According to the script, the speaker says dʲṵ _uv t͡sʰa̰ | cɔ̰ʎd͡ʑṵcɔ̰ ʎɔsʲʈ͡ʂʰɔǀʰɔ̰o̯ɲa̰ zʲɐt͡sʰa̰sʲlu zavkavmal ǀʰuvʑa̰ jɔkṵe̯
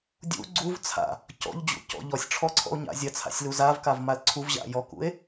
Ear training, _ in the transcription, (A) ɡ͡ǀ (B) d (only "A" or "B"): A